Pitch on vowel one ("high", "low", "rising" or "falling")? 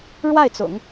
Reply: falling